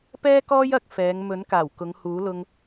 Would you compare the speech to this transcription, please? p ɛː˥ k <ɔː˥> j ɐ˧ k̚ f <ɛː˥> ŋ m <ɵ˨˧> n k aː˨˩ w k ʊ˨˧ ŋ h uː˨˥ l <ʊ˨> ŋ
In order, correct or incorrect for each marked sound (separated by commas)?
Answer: correct, incorrect, incorrect, incorrect